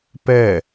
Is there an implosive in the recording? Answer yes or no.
no